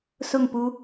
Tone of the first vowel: falling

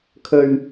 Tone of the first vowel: low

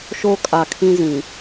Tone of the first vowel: high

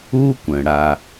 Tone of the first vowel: high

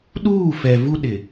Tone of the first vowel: falling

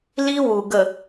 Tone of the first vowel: high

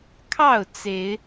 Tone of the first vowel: falling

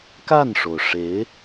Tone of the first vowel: falling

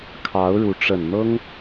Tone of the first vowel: rising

